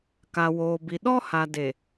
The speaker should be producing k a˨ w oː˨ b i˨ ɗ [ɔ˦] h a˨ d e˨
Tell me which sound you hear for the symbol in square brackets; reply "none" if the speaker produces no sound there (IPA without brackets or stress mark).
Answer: ɔ˦